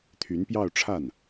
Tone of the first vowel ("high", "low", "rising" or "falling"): rising